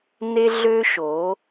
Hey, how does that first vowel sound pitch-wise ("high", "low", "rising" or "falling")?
high